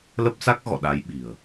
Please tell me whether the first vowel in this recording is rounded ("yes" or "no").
no